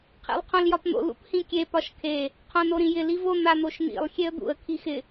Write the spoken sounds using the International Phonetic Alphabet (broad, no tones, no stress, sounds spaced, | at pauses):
qʰ ḛ lˠ qʰ õ l j ɒ p n̪ o̰ l ṵ p h ĩ kʲ e p ɒ ʃ kʰ e | qʰ õ n o ɾ ĩ j ɪ l i v o n̪ a n̪ o ʃ n̪ ḭ lˠ xʲ e ə̯ d̪ ṵ ə̯ kʰ i x ɪ